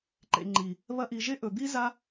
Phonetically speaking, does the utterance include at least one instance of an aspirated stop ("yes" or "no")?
no